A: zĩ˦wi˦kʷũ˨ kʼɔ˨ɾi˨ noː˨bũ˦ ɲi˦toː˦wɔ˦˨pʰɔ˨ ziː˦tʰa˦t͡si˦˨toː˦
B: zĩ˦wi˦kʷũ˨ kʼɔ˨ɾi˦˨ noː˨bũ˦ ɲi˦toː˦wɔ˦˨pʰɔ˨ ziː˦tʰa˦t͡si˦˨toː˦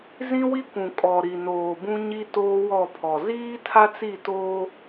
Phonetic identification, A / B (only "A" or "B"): A